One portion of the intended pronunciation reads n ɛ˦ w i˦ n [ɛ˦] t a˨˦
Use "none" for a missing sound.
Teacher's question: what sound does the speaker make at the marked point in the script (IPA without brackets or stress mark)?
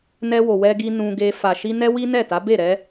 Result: ɛ˦˨